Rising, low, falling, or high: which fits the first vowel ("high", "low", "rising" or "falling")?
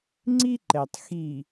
high